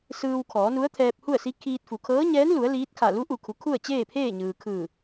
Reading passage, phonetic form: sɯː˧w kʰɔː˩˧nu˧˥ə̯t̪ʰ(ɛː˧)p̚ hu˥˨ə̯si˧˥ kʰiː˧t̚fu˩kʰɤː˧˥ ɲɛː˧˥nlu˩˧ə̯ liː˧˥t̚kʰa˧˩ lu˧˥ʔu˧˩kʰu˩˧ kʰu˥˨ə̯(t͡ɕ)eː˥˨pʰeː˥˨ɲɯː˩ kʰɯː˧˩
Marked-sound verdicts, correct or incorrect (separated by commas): correct, correct